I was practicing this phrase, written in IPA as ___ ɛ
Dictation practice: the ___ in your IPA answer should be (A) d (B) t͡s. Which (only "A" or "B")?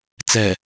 B